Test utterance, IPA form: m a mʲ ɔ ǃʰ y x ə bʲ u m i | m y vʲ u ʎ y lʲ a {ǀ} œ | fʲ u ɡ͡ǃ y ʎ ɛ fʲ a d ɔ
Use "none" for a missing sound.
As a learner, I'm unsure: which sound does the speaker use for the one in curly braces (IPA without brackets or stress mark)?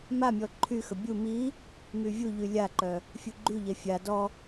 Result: ǃ